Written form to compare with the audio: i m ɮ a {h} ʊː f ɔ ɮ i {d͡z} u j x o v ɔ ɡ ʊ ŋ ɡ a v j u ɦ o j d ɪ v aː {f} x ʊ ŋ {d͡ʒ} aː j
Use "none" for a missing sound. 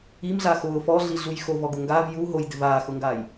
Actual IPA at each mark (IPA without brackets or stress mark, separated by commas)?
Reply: x, ɮ, none, ɡ